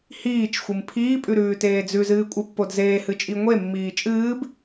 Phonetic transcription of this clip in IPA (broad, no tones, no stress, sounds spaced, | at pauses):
h iː t͡ʃ xʷ ɨ m pʰ iː pʼ ʉ ɾ ʉː t eː d͡z ʉ z ɨː kʷʼ ɨ pː o d z eː h ɨ t͡ʃʼ i ŋʷ e mː iː t͡ʃʼ ɨː b